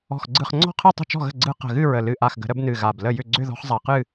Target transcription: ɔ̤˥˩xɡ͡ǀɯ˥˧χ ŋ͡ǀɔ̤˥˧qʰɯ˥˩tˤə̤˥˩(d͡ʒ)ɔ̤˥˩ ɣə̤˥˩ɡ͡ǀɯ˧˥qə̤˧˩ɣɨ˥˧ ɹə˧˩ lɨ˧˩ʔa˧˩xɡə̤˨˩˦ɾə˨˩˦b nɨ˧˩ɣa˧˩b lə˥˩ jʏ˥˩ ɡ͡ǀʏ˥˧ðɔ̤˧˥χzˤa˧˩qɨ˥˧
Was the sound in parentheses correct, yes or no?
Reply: no